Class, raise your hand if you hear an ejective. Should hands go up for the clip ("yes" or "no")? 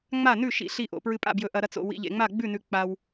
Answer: yes